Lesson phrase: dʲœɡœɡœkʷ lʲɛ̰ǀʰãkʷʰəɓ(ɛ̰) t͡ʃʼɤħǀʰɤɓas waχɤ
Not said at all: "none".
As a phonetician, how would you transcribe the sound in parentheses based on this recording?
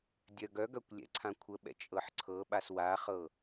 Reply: ɛ̰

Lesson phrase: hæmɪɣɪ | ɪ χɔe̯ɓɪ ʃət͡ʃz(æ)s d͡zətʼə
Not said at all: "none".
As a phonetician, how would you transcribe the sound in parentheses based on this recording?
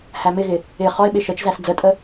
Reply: æ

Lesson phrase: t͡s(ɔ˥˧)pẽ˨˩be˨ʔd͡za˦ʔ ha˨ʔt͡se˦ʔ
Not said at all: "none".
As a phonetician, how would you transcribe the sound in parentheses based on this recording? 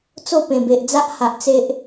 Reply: o˥˧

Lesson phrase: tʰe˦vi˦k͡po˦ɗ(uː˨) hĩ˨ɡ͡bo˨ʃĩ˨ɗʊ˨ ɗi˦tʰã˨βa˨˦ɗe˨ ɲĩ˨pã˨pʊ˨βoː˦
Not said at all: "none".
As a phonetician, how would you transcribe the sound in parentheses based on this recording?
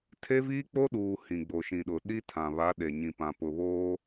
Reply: uː˨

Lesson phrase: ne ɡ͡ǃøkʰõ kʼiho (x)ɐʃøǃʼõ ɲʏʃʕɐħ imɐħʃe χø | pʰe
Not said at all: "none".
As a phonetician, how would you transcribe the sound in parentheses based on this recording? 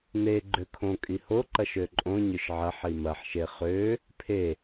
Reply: ǃ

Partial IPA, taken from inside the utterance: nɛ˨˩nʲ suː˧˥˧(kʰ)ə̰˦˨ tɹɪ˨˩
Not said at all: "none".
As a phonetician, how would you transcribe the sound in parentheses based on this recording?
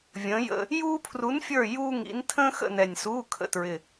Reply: kʰ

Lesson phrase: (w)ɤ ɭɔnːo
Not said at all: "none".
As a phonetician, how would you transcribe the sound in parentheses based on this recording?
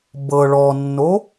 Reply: b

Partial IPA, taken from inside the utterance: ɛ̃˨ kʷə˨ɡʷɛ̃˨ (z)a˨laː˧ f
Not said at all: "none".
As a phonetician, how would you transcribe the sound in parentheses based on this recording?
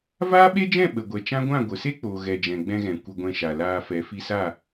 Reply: ʃ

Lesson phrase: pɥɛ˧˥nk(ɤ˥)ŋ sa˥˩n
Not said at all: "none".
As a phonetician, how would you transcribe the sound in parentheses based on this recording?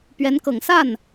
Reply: ɤ˨˩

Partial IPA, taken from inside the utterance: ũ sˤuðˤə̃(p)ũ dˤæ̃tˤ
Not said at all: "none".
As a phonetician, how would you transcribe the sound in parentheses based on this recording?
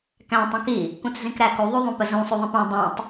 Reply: p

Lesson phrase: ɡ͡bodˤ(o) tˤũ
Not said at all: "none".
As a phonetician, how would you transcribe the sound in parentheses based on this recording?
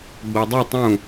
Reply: u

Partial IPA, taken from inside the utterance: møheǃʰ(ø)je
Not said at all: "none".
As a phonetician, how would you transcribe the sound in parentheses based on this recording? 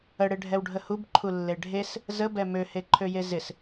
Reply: ø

